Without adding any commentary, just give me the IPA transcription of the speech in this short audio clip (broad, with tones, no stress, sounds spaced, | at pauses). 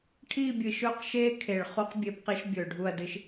ʈʰ iː˦˨ bʲ ɨ˨ ʃ ɵː˦ q ʃ eː˦ kʰ e˨ ɭ χ u˦ q bʲ e˦ b q i˦ ʃ bʲ ɵː˨ ɖʱ u˦˨ ɐ̯ d ɨ˨ ʃ